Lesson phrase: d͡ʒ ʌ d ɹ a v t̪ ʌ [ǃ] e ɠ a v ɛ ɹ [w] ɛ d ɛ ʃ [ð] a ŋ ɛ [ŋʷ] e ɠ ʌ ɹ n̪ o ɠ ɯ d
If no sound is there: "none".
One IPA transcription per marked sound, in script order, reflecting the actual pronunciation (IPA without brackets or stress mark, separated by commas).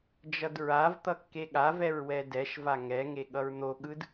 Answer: kː, w, v, ŋ